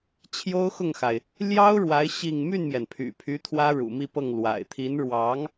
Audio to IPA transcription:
t͡ɕʰ j o˥ ʊ̯ x ʊ˥˩ ŋ x a˩ ɪ̯ | l j ɑ˥ ʊ̯ ɻ w a˧˥ ɪ̯ ɕ i˥˧ ŋ m y˥˩ n m j ɛ˩ n pʰ y̰˨˩ pʰ y˧˥ t̪ʰ w ä˥ ɻ ṵ˨˩ m i˥˧ p ɤ˥˩ ŋ l w a̰˨˩ ɪ̯ t̪ʰ i˧˥ n ɻ w ɑ˧˥ ŋ

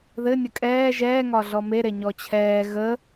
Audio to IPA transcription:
ð ɘ nʲ ə kʼ ɛː ʒ ɛː ŋ ɒ ɮ ɔ m e ɾ e ɲ ɔ t͡ɕʰ ɛː ɣ ə

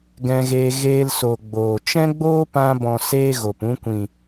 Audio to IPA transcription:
ɡ ɛ̃˧ ɣ eː˧ ɣ eː˧ l s o˨ ɡ͡b oː˨ t͡ʃ ɛ̃˦ ɡ͡b oː˦ p ã˧ b ɔ̃˨ s eː˦ ɣ o˨ p ũ˧ kʷ ĩ˨

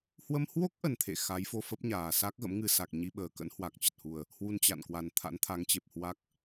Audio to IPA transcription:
h w ə˧ m h w o˦˥ k̚ ʔ ə˧ n t̪ʰ ḛ˧˨ x a˨˦ j f o˧ f ə˦˥ p̚ ɲ aː˨˩ s a˦˥ k̚ ɣ ə̰˧˥ m ŋ ɨ˧ s a˨˩ k̚ ɲ i˧ ɓ əː˨˩ k ə̰˧˥ n h w a˨˩ k̚ t͡ɕ ə˨˩ t̚ h u˨˩ ə̯ | h w u˧ n t͡ɕ a̰˧˨ n k w a˨˩ n t̪ʰ a̰˧˥ n t̪ʰ a˨˦ ŋ t͡ɕ e˨˩ p̚ h w a˦˥ k̚

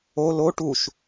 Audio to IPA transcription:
o l o ʈ u ʃ

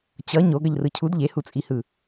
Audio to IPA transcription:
t͡ɕ ʌ ɲ o ɡ ʌ ʎ r ɯ cʰ u d ʎ e h u t͡sʼ i h ɯ

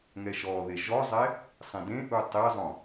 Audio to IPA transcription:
ŋ ɛ ʃ ɔ ð e ʒ ɔ zˤ ɛ | sˤ ĩ d ẽ ʔ u tˤ e zˤ õ

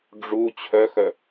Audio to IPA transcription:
ɖ͡ʐ u t͡ɕʰ œ x œ

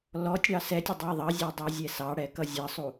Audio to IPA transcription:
l ɔ tʲ ɽ ɑ s ɛ tʲ ə dˤ æ ðˤ ʌ zʲ ɛ dˤ æ zʲ ɛ s ɑ ɽ ɛ k ʌ zʲ ʌ sˤ u

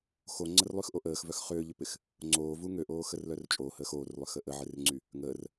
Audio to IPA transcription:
x o ŋ͡ǀ ə r lˠ y x ʔ o ʔ əː x v œ x χ ʏː ʎ ʏ p ɪ x | ŋ͡ǀ oː v u ŋ ø ʔ oː x ə r l œ r t͡ʃʼ o h əː x oː r lˠ ʏ x ə ʔ ə ʕ ɪ r ŋ͡ǀ y | ŋ əː r

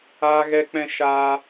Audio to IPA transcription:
aː˦ ɣ ɛ˦ k͡p ɛ̃˦ ʃ aː˦

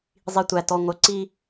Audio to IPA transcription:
zˤ i˨ tʷ æ˨ t ɔ˨ ŋʷ œ˨ ǀ i˦

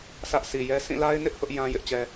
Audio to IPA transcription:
sʰ ä˦ ʔ s i˨ j ɛ˦ s ĩ˦˨ l a˦ ɪ̯ n ɪ˦ ʔ h ʊ˦ ʔ j ã˦ j ɪ˦ ʔ t͡ɕ ɛ˦

